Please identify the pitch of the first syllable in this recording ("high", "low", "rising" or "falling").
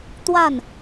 falling